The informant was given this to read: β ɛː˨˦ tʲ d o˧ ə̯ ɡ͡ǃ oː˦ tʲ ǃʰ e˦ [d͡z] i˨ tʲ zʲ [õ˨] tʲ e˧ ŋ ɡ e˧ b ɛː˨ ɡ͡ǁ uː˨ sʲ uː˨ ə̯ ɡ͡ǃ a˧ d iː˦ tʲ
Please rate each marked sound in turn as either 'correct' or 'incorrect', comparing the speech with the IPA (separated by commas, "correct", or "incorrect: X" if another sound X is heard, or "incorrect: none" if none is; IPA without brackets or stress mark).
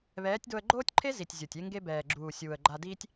incorrect: z, incorrect: o˨